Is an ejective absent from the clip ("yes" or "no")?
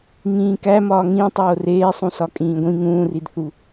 no